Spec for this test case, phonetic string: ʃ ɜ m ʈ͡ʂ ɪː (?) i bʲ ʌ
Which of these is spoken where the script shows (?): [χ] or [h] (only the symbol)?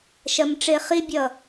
χ